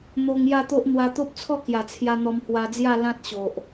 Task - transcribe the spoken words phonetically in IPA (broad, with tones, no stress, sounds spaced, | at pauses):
n̪ o˧ ŋ j a˥˧ t̪ o˦ ʔ n̪ w a˧ t̪ o˦ p̚ t͡sʰ ɔ˥˧ k j a˨˩ t͡sʰ j a˧ n̪ ɔ˧ m h w a˧ d͡z j a˥˧ l ã˦ t̚ ɕ o˨ ʔ